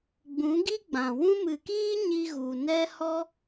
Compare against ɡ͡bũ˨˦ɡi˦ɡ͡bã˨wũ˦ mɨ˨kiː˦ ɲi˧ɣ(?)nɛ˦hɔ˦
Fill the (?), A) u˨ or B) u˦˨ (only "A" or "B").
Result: A